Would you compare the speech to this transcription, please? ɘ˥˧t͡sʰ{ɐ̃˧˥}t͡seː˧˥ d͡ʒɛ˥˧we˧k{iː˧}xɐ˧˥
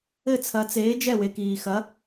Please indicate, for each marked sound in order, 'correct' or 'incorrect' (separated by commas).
incorrect, correct